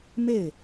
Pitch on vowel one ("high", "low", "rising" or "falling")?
falling